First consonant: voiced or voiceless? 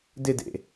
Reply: voiced